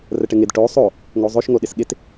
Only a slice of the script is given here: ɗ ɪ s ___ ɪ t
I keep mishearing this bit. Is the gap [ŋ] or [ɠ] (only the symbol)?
ɠ